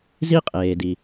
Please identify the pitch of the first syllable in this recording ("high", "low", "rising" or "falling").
high